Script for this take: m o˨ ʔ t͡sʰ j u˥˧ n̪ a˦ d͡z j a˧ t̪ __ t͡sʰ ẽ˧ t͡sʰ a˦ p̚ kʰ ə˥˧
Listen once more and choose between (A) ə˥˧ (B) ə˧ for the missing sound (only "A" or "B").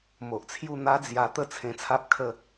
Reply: A